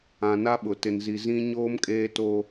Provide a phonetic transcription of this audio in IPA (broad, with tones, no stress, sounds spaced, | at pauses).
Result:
ã˨ n a˦ ɓ ʊ˨ t ɪ˨ n z i˨ z ĩ˦ ɲ oː˦ m kʼ eː˦ t o˦